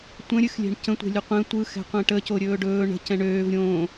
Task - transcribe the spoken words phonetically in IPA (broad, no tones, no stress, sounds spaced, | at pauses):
tʷ ə̃ ɾʲ ɨ x lʲ ɛ̤ ɳ c ə̃ tʷ ɛ̤ lʲ ɵ qʷ ɛ̃ tʷ ɯ x ɛ̤ qʷ ɛ̃ ʈ ə c o ɾʲ ɵː ɖ ɵː ɳ ə̤ c ɛ̃ ɳ øː v ɾʲ õː